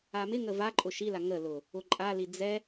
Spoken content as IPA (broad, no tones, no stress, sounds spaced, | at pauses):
a m ɪ ŋ ə v a ǃʼ ʊ ʃ i l a ŋ ə l ʊ | ʊ ǃʼ a l i d͡z ɛ